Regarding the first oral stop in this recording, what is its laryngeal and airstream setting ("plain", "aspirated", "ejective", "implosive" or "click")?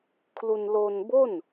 aspirated